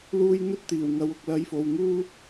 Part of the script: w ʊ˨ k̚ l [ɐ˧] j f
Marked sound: correct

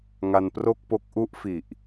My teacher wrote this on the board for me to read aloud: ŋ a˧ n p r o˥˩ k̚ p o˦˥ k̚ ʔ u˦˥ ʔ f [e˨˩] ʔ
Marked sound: incorrect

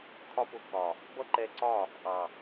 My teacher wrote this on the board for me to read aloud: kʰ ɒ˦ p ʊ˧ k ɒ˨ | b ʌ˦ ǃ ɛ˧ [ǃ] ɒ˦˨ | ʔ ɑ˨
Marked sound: incorrect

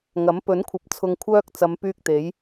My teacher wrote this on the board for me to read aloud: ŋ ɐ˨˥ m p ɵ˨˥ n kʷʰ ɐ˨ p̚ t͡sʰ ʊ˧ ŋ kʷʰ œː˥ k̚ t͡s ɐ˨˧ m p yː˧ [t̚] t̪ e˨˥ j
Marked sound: incorrect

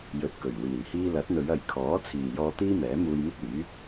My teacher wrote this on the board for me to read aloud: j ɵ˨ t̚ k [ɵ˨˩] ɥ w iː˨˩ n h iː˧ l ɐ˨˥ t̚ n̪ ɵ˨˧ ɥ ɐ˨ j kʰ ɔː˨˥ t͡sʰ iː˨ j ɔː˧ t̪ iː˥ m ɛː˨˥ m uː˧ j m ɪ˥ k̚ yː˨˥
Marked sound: correct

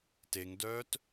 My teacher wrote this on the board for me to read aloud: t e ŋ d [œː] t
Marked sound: correct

